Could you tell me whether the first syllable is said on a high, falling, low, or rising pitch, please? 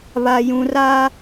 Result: low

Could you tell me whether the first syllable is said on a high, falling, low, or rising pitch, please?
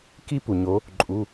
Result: high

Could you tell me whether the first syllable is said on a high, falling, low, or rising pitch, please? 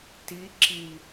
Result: rising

